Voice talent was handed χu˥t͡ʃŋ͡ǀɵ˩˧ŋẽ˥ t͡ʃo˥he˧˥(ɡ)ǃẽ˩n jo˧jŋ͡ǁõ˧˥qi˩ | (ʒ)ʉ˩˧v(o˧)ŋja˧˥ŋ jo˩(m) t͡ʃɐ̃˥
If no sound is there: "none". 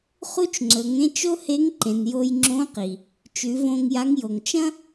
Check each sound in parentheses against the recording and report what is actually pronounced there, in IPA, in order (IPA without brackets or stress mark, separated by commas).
ŋ, t͡ʃ, õ˧, ŋ